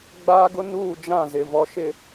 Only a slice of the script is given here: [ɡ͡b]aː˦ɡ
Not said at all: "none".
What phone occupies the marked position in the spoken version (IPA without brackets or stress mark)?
ɡ͡b